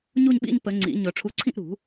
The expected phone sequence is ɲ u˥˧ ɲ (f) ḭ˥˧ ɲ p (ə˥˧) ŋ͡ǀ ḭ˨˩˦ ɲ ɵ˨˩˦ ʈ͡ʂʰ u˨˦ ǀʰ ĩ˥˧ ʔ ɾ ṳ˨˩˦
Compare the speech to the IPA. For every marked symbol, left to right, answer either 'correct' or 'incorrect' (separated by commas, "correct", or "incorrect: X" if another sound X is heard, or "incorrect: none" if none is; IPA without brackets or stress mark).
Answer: incorrect: ɓ, incorrect: ə˨˩˦